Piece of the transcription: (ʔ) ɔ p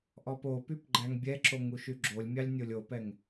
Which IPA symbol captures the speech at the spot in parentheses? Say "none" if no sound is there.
ʔ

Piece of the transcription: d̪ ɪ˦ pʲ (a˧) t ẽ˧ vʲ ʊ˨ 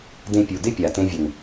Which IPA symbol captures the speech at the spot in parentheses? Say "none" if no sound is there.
a˨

